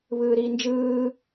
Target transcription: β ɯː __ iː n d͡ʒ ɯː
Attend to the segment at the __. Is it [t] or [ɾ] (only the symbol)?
ɾ